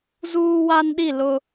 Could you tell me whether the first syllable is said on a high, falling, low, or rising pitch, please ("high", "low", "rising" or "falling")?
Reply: high